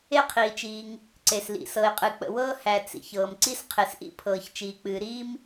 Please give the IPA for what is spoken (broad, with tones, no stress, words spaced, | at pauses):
e˥qʰiː˩t͡ʃiː˩ŋ | ǀe˩slḭ˩ sɤ˩ɪ̯qʼɨ˩k͡pə̰˩wɤː˥ hæ˩ t͡sḭ˩çɤː˩m ǀi˥sqʰe˩sʔḭ˥pʰɤː˩ç t͡ʃiː˩k͡pɨː˩ ɾiː˥m